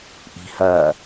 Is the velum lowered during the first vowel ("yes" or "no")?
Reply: no